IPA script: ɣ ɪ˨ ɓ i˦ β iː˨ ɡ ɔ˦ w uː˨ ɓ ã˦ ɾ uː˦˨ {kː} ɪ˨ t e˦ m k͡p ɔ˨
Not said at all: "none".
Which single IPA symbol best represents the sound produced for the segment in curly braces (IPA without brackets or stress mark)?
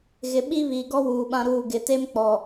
ɡ